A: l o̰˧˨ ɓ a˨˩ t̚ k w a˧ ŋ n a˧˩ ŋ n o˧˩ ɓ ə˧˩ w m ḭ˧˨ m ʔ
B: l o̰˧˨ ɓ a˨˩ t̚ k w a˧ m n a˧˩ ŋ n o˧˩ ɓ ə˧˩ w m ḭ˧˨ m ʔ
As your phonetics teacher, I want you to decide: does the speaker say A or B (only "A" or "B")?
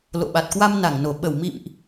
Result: B